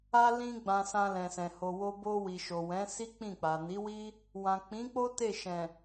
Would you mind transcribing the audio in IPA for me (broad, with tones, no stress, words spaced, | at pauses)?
a˧lĩ˧ ɡ͡bã˨ sã˧lɛ̃˨sɛ̃˨ ho˨wo˧ bo˧ wi˨ʃo˨wɛ̃˨˦ si˦k͡pĩ˦˨ k͡pa˨ni˨˦wi˦ | wã˨k͡pĩ˨˦k͡po˦ te˦˨ʃɛ̃˨